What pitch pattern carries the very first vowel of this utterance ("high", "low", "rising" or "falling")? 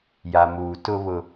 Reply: low